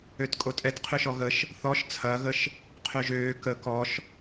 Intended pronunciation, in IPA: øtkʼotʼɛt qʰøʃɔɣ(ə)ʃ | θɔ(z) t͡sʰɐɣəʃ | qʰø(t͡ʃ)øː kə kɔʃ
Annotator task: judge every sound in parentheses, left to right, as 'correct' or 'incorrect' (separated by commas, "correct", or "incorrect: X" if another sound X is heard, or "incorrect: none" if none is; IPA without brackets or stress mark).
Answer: correct, incorrect: ʃ, incorrect: ʒ